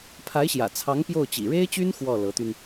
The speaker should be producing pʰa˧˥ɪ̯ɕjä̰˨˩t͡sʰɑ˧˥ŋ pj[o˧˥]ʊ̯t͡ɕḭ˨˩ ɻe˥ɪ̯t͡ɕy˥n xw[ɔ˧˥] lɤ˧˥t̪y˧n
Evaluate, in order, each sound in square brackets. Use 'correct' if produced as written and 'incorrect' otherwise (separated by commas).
incorrect, incorrect